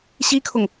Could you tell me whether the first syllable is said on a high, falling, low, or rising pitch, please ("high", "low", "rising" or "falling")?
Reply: high